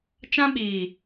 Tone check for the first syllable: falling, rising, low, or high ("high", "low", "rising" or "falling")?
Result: high